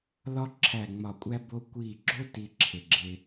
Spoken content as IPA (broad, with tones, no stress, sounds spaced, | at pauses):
l ɒ˦ ǁʰ æ˧˩ ŋ͡m ɒ˧˩ kʷʼ æ˦ b o˦ kʷ i˧˩ ɡ͡ǁ o˦ t i˦ ǁʰ e˧˩ ɡ͡ǁ e˦